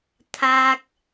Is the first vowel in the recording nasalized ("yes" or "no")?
no